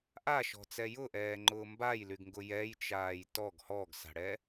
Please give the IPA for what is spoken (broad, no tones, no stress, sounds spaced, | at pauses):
ʔ a ʃ ɔ̤ t͡s ɛ j ʊ ʔ ɛː ŋ͡ǃ ʊː m b a j l y ɡ ŋ ɡ ʊ j ɛ j t͡ʃ aː j t ɔ ɡ h ɔ ɡ s a̤ ɽ ɛ